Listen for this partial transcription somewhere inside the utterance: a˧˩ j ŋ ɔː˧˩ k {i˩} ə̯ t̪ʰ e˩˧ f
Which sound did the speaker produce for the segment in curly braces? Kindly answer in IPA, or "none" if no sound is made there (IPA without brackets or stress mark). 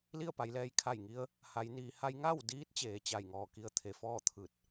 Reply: i˧